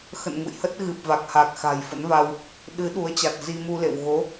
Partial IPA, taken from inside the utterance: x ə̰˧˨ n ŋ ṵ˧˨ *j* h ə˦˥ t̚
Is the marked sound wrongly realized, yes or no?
no